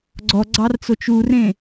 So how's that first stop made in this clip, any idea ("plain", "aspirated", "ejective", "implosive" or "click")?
click